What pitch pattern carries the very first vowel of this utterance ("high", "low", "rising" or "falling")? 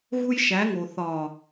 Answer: high